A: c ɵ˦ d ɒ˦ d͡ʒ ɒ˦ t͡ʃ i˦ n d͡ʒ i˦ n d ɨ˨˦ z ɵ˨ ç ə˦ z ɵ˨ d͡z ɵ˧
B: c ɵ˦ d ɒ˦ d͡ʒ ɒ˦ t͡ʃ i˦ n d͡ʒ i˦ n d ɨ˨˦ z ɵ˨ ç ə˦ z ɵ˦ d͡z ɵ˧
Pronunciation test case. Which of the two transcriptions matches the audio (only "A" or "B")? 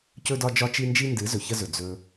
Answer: A